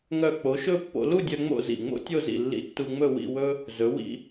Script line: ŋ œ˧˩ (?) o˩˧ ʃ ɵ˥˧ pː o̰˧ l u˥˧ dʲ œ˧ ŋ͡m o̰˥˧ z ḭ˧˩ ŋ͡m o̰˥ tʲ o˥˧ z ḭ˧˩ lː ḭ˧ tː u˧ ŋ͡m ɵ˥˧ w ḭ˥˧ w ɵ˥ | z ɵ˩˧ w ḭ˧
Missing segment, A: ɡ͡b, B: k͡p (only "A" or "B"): B